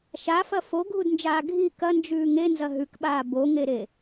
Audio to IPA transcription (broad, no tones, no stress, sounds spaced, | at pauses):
ʃ a f ɐ f o ɡʱ u d n d͡ʒ aː ɡʱ i k ɐ n d͡ʒ ʉː ŋ e n z ɐ ɦ ʉ k ɓ aː b o ŋ e ɾ e